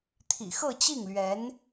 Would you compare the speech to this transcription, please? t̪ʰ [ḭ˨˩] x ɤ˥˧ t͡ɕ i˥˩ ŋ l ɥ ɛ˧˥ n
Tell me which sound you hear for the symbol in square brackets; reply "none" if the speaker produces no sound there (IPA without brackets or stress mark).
ḭ˨˩